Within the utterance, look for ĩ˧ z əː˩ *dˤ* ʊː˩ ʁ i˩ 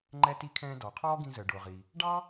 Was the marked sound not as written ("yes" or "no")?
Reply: yes